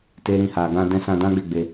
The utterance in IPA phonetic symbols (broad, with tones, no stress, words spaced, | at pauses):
te˦ɾĩ˦˨ha˧ ɡã˧dɛ̃˧ sã˧dã˦ɡ͡be˦˨ ɡ͡be˧